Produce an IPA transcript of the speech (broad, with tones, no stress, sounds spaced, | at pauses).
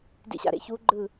d ḭ˨˩˦ ɕ a̰˩ ɾ ḛ˨˦ ç u˨˦ ɡ͡ǃ ɯ˧˩